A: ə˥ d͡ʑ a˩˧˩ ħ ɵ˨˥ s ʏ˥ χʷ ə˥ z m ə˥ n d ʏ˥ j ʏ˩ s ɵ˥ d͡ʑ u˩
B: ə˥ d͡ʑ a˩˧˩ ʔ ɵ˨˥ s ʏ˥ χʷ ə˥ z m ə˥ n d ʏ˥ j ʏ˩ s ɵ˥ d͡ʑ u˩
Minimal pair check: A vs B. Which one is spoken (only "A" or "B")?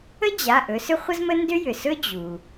B